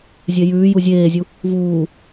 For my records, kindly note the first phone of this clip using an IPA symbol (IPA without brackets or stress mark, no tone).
zʲ